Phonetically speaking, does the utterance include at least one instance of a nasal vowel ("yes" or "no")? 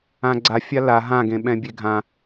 yes